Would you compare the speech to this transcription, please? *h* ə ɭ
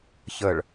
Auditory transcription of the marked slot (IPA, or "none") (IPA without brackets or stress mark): ç